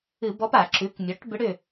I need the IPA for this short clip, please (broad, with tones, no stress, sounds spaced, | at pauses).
ɨ˧˩˧ b ɔ˧˥ p a˧˩˧ ǁ ʉ˩˥ k mʲ ɔ˩˥ ʈ b ʏ˧˥ ɽ ʏ˦˨